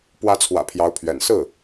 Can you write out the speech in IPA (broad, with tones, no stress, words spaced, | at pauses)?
pwä˧˥t͡sʰwä̰˨˩ pʰjɑ˧˥ʊ̯pʰɥɛ̰˨˩n sɹ̩˥˩